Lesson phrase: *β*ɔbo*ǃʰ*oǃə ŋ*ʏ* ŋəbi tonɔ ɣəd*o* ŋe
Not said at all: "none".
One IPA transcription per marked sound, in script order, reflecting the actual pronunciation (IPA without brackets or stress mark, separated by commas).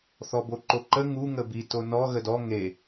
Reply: θ, ǃ, u, ɔ